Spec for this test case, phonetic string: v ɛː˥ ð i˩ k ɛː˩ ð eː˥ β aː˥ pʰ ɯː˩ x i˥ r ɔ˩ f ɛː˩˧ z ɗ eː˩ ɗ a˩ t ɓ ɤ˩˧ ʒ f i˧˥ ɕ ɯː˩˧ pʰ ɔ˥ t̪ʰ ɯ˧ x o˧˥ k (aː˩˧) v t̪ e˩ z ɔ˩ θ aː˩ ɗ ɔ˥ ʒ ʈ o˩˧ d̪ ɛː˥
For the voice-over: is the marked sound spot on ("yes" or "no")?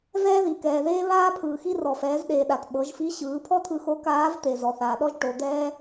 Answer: no